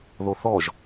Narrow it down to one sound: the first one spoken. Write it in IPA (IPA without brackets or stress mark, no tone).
ð